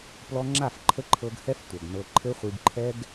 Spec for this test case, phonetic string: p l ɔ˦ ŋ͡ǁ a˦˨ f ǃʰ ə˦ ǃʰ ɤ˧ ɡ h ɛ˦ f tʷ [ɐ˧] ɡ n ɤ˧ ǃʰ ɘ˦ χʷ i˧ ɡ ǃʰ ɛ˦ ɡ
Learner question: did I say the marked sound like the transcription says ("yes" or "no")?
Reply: no